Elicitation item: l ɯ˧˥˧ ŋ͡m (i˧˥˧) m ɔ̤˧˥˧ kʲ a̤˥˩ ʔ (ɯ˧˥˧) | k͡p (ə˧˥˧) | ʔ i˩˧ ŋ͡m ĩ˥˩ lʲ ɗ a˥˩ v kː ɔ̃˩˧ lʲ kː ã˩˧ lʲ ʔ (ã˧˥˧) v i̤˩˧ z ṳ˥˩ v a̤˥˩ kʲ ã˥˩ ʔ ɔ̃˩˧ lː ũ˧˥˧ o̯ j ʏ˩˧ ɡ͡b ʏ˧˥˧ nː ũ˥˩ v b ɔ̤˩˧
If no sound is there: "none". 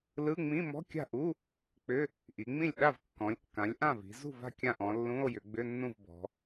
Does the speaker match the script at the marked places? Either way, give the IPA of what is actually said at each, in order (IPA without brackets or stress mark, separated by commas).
ĩ˧˥˧, u˧˥˧, ʏ˧˥˧, ã˥˩